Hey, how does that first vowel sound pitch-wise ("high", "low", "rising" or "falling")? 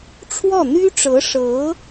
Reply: falling